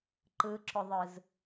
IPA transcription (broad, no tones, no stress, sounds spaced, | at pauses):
ǃ ɯ ǁ ʊ ðˤ ɯ z